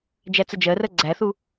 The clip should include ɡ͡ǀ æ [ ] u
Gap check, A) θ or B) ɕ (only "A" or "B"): A